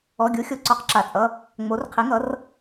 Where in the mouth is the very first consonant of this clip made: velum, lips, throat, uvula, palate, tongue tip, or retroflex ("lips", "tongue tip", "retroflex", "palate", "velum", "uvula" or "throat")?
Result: velum